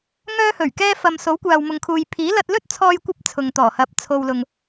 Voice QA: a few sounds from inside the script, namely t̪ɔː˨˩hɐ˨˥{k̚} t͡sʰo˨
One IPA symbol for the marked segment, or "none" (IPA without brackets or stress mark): p̚